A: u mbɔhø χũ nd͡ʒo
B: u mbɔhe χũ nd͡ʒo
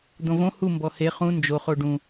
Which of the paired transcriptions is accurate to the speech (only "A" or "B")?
B